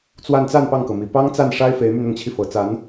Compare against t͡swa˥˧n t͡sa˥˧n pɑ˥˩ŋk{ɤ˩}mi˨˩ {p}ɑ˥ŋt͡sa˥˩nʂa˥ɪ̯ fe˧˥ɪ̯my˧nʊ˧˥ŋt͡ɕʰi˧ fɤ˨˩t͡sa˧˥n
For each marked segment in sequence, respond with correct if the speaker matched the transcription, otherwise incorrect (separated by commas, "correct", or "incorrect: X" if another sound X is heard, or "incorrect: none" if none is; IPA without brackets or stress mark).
correct, correct